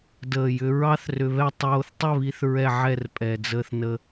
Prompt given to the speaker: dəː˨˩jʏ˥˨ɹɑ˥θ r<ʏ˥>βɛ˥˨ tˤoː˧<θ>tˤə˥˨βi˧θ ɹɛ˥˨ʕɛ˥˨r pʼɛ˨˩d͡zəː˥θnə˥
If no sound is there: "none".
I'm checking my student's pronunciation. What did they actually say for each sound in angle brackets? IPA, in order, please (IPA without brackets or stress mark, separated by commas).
ʏ˧, θ